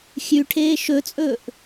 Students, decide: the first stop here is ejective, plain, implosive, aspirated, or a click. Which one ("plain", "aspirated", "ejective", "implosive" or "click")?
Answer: aspirated